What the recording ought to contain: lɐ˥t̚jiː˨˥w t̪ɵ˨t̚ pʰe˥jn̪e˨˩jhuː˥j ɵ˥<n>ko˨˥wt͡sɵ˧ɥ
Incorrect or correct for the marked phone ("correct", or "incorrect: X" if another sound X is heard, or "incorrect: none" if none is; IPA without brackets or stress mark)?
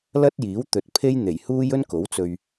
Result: correct